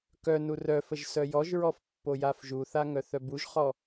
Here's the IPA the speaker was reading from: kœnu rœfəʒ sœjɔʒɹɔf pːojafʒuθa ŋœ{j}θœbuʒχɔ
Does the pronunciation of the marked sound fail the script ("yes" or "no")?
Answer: yes